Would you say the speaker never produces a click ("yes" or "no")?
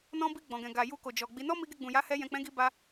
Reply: yes